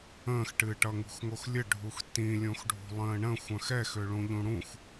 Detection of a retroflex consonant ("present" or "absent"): present